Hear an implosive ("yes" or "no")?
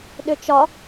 yes